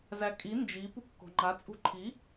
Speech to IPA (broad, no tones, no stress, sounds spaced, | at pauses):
z æ kʼ i n d͡ʒ i p u kː o̤ ŋ͡ǃ a t͡sʼ ṳ ǃʰ i